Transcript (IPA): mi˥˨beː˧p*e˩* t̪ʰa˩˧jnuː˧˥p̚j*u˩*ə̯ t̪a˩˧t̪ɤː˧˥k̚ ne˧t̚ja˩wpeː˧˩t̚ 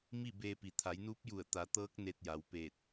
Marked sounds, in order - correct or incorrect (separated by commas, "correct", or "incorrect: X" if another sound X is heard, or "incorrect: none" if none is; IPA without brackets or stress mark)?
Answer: incorrect: i˩, incorrect: u˧˩